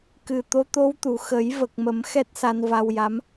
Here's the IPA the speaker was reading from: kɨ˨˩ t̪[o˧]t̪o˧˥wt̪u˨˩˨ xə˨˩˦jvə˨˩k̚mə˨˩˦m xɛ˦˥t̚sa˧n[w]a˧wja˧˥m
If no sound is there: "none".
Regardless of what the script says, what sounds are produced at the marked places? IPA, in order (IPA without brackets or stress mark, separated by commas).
o˧˥, v